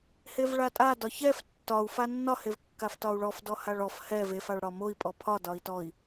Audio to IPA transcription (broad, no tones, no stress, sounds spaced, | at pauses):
h e v ɭ a tʼ a d ɒ ç ɛ f tː ɒ u̯ f a nː ɒ h e v kː a f t ɒ u̯ ɭ ɔ f d ɔ h a ɭ ɔ f h ɛ v e f a ɭ ɽ ɒ m o i̯ pʼ ɔ pʰ ɒ d ɒ i̯ t ɔ i̯